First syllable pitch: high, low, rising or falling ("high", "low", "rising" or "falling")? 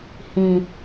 low